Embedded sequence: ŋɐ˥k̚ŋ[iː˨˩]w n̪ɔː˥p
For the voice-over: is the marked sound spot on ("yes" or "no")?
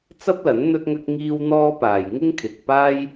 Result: no